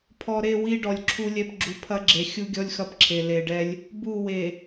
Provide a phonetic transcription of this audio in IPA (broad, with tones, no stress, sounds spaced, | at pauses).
pʰ ɔ˨ ɾ e˦˨ w i˦ ɖ ɔ˨ lʲ ǁʰ u˦ lʲ ɛ˦ p ɡ͡ǁ u˨ pʰ ɐ˦ ɡ͡ǁ e˨ xʲ u˦ ɡʲ ɔ˦ lʲ x ɐ˦ p ǁʰ e˨ l e˨ ɖ ɛ˦ lʲ | b u˦˨ w e˨